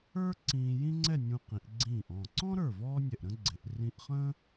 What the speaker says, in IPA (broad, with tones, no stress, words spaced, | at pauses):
ə˞˥ ǀĩː˧jĩ˥ŋ͡ǀɛ˥˧ nʲũ˧qĩ˩˧ʔ ɡ͡ǀĩː˧˩ʔɔ̃˧˩ ǀɔ̃˥ɾə˞˧˩ vɔː˥nʲɛ˧˩ʔɾə̃˥ɡ͡ǀɪ˩˧ʔ rĩ˧ʔχə̃ː˥